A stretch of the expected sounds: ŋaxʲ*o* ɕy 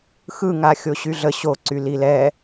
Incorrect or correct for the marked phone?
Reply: correct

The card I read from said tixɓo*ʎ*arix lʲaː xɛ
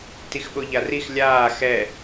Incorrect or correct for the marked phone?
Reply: correct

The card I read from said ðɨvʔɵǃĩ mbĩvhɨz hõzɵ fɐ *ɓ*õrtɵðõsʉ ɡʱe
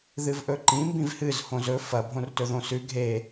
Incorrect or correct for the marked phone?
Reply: incorrect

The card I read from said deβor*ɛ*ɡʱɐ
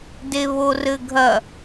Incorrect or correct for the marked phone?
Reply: incorrect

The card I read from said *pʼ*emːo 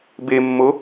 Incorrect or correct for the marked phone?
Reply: incorrect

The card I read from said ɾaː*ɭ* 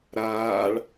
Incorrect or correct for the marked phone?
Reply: correct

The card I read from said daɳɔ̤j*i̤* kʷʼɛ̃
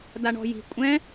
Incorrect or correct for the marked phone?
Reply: correct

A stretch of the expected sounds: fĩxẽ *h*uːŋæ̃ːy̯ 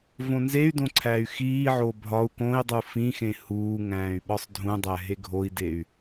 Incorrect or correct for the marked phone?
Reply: correct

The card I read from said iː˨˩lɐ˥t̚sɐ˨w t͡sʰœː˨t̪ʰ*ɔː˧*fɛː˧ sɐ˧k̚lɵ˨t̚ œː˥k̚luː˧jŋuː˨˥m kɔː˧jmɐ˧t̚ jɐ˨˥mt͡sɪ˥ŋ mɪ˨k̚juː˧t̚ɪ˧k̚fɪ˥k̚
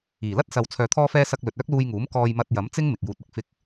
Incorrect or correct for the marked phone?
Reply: correct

